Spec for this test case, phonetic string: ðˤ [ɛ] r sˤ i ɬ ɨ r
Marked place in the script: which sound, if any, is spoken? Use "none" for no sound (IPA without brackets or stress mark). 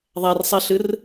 ɛ